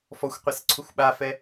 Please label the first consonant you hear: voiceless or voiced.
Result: voiceless